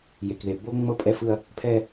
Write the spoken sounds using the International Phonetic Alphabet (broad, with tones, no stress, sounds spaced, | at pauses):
j e˨ k ð e˨ b o˦ ŋ͡m ɤ˦ pʼ ɛ˦ f ɯ˦ ɐ̯ | pʰ ɛ˦